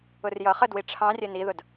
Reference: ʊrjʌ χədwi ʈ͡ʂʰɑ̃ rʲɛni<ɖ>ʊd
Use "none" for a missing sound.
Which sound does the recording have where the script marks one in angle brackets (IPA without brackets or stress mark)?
ð